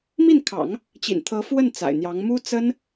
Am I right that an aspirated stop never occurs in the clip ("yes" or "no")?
no